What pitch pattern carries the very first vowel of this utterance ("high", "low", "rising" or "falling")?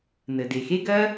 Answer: low